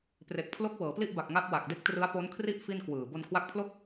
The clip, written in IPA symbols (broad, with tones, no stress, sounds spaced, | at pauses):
p r e˨˩ k̚ pʰ l o˦˥ k̚ w ɤː˩˦ p l i˥˩ ʔ b a˨˩ k̚ ŋ a˦˥ p̚ w a˨˩ k̚ d e˦˥ k̚ t r ɯ˦˥ a̯ p o˦˥ n kʰ r i˥˩ ʔ f i˥˩ n k w ɯː˨˩ b o˧ n kʰ w a˦˥ k̚ pʰ l o˥˩ k̚